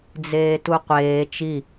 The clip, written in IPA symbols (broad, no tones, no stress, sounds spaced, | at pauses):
d͡z eː t u qʷ eː t͡ʃ i